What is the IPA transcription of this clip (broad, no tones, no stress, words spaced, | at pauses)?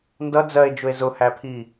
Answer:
ndʌ d͡zɜe̯d͡ʒʊe̯ zʊhæpʰi